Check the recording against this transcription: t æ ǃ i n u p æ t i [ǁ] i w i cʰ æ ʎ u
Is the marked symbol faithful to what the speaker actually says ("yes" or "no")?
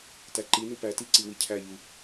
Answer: no